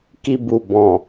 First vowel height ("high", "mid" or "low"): high